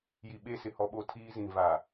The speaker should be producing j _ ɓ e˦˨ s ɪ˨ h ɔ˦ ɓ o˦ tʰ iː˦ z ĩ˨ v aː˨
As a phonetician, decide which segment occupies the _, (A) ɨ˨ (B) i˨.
B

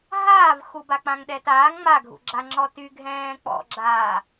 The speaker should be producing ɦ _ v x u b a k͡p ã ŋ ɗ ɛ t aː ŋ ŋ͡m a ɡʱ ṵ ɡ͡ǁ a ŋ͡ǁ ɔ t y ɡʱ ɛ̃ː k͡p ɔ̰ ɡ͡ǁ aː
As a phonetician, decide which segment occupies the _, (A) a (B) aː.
B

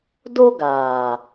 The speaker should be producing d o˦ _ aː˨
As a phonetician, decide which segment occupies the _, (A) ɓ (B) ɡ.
B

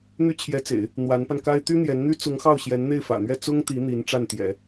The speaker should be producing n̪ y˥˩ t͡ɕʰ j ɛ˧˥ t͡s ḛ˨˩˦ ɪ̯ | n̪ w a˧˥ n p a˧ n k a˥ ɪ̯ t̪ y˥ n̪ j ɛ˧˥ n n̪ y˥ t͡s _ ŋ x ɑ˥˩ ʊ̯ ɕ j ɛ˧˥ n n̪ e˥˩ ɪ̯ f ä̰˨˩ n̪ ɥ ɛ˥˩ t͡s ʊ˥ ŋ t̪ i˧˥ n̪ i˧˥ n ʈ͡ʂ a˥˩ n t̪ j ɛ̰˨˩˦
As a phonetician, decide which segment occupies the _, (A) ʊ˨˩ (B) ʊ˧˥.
B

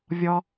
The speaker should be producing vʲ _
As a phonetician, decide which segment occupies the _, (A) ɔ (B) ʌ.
A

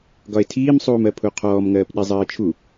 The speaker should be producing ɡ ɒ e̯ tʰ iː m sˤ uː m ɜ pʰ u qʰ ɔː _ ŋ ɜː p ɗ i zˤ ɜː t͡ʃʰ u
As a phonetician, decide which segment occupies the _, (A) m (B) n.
A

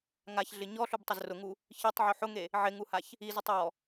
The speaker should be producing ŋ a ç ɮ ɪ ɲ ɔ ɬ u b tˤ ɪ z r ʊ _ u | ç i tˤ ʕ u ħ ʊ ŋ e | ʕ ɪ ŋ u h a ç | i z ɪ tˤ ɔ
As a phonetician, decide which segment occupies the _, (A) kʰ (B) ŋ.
B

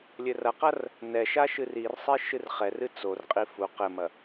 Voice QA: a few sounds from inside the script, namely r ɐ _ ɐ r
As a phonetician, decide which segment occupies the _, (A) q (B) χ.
A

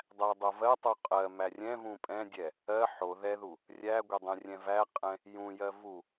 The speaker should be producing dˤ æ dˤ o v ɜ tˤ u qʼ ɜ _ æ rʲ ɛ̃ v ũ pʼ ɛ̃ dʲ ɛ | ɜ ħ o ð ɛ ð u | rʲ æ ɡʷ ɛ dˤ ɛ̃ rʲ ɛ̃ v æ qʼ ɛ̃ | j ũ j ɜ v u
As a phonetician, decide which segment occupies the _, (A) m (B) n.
A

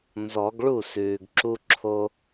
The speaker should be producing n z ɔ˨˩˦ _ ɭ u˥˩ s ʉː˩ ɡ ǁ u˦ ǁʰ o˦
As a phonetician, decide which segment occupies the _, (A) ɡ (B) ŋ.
A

